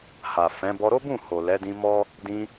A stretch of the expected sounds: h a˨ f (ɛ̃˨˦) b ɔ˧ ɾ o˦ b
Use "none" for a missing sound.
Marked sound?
ɛ̃˨˦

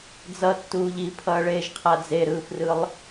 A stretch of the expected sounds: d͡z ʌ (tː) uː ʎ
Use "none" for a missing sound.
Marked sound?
tː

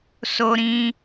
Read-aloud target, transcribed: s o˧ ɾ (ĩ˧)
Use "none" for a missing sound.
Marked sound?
ĩ˧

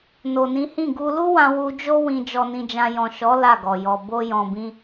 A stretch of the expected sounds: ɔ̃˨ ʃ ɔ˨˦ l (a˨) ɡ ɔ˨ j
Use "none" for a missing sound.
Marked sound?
a˦˨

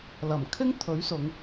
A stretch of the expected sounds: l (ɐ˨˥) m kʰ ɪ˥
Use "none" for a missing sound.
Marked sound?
ɐ˨˩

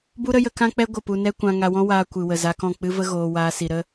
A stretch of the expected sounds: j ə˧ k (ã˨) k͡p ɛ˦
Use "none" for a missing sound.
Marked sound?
ã˦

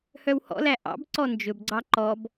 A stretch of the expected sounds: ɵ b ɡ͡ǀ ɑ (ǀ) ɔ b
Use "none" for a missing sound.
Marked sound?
ǃ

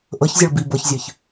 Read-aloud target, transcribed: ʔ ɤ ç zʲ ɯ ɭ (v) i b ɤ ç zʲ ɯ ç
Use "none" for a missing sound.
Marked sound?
b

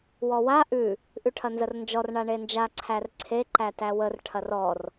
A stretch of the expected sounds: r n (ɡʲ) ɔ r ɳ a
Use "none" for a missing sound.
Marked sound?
d͡ʒ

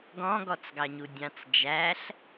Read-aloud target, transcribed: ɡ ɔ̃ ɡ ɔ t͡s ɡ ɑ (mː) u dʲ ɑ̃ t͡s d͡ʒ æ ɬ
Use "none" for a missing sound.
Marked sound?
ɲ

